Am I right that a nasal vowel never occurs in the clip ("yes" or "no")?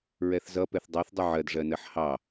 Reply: yes